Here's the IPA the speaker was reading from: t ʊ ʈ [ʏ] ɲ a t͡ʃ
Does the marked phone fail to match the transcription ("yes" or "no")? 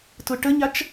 yes